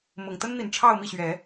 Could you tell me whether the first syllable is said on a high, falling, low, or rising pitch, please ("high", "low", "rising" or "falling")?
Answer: low